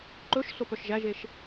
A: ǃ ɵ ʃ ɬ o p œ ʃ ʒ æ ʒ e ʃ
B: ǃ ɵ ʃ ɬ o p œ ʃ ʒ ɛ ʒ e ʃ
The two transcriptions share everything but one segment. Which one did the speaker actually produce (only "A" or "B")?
A